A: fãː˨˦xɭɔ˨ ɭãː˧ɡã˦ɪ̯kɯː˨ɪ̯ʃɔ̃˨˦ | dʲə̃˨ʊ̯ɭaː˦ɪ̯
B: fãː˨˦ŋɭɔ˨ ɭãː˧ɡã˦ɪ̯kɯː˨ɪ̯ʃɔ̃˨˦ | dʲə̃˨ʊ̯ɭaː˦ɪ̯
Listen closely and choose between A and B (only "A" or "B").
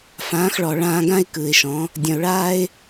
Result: A